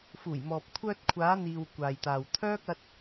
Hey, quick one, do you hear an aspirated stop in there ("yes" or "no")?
yes